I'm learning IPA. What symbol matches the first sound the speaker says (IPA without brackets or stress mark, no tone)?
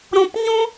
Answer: ɾ